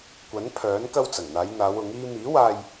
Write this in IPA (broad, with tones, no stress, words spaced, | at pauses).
kʷɐ˨˥npʰœː˨˥n kɐ˧wt͡sɐ˨˩ŋn̪aː˨˧jn̪aː˨˧w ʊ˨˥ŋiː˥ miː˨˥waː˧j